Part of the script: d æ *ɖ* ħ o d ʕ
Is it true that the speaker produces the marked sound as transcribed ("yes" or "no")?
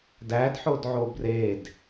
no